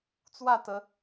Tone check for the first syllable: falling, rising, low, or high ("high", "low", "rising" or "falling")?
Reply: falling